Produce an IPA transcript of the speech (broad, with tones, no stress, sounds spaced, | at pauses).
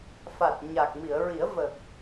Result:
f a˨˩ t̚ ɲ a˨˩ k̚ m i˨˩˨ ə̯ ɹ i˨˩˦ ə̯ v ə˨˩ k̚